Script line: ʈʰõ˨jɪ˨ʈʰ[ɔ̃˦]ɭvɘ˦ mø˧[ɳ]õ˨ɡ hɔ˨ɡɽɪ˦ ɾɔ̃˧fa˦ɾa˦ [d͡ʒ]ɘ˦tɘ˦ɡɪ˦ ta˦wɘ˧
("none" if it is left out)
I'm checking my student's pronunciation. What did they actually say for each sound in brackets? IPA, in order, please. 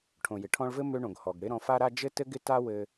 ɔ̃˧, ɳ, d͡ʒ

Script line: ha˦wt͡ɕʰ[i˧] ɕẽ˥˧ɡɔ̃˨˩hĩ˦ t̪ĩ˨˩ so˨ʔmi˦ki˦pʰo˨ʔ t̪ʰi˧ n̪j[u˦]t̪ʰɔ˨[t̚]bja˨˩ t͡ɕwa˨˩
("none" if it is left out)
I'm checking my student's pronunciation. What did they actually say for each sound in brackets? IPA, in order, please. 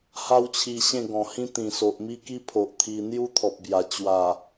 i˧, u˦, p̚

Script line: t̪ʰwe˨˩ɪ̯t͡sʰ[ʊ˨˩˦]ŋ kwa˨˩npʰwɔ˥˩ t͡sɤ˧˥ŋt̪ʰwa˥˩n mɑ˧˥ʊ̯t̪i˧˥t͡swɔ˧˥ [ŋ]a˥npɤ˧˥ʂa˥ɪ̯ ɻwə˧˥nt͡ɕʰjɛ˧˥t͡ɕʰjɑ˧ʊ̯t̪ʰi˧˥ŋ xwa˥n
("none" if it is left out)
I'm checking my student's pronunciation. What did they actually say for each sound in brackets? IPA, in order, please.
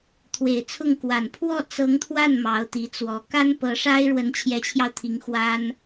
ʊ˥˩, k

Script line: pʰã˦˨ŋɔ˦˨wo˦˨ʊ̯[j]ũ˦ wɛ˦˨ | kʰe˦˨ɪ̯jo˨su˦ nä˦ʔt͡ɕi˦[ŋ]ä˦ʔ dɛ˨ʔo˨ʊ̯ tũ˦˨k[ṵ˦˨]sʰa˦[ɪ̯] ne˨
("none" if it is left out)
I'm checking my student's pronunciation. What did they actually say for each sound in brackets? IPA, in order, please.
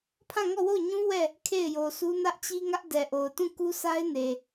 ɲ, ŋ, u˦, ɪ̯

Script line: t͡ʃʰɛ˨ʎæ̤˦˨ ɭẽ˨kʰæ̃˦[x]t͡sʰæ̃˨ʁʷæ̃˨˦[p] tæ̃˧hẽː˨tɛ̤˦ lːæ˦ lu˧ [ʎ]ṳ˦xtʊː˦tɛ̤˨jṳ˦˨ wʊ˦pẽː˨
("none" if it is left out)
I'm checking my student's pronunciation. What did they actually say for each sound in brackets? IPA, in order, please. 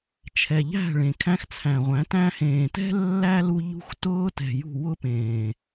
x, none, ʎ

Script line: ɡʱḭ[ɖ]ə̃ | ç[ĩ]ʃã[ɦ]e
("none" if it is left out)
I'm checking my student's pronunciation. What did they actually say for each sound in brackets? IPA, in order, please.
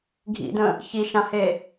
d, i, h

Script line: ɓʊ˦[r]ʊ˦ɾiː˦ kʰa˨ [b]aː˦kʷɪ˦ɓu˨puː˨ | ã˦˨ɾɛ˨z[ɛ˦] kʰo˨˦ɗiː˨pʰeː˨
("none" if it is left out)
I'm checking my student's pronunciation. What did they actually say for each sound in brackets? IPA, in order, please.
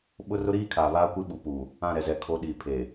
r, β, ɛ˨

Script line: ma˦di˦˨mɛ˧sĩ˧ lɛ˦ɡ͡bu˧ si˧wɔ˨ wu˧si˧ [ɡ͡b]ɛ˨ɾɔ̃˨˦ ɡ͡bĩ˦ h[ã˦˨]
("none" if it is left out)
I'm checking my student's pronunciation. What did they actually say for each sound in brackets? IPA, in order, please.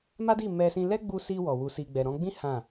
ɡ͡b, ã˦˨

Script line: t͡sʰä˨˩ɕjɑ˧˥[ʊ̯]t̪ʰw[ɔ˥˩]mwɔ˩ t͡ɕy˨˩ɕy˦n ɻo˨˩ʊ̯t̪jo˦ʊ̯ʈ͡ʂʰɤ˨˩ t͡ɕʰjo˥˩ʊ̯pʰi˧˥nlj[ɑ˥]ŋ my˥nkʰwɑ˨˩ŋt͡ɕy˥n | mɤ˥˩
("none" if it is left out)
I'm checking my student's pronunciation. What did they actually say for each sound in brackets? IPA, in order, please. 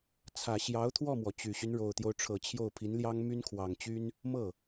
ʊ̯, ɔ˥˩, ɑ˥

